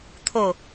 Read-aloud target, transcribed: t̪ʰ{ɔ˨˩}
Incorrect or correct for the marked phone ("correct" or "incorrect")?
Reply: incorrect